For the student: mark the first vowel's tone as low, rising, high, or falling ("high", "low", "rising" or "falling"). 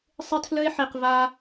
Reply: high